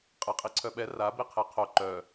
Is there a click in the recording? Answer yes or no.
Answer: yes